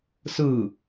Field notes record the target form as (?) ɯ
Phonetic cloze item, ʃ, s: s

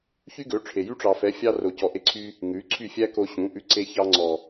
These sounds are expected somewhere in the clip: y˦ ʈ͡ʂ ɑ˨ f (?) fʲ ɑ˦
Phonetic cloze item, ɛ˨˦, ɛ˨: ɛ˨˦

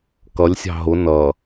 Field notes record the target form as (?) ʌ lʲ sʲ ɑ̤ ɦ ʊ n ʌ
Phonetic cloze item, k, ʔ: k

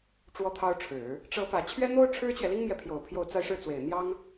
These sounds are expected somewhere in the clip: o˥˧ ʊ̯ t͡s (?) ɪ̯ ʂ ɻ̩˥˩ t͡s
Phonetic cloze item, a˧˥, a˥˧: a˥˧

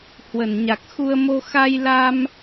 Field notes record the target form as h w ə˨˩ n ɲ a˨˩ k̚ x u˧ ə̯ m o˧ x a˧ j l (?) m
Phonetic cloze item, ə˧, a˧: a˧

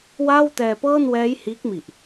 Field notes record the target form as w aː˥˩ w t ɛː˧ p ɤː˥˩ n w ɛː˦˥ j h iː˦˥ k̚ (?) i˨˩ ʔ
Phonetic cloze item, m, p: m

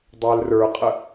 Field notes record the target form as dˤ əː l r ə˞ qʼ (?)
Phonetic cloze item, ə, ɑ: ə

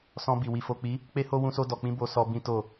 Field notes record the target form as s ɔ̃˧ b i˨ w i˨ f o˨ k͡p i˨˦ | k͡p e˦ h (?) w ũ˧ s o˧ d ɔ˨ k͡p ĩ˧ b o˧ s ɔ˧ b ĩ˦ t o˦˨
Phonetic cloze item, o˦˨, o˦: o˦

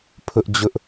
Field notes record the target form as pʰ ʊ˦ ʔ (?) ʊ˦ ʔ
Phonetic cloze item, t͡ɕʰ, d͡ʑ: d͡ʑ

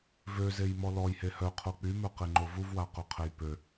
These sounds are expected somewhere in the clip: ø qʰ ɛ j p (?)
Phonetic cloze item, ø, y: ø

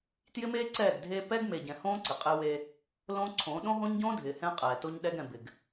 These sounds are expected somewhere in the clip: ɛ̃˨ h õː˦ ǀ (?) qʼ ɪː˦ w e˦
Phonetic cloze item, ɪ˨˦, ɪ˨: ɪ˨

